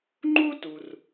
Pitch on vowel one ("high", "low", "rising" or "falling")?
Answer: high